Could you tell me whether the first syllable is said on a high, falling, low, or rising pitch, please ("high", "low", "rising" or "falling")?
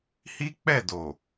high